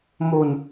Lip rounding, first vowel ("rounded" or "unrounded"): rounded